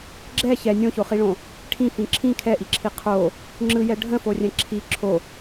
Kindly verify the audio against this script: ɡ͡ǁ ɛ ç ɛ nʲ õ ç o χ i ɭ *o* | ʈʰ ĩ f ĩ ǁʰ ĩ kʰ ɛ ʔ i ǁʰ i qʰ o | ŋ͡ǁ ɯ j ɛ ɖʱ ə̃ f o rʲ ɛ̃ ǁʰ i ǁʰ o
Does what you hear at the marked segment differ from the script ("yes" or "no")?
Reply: yes